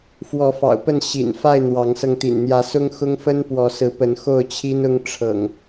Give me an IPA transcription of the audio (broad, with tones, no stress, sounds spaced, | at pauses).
f w ɔ˨˦ f ɑ̰˨˩ ʊ̯ p ə˥˨ n ɕ ḭ˨˩ n f a˥˨ ɪ̯ n̪ w ɑ˨˦ ŋ s ɤ˧ ŋ t̪ ḭ˨˩ n n̪ j ä˨˦ s ʊ˦ ŋ x ʊ˦ ŋ f ə˦ n p w ɔ˨˦ s ɹ̩˨˦ p ə˨˦ n x o˥˨ ʊ̯ t͡ɕʰ i˦ n ʊ˦ ŋ ʈ͡ʂʰ ɤ̰˨˩ ŋ